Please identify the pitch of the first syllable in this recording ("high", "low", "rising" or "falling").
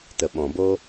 low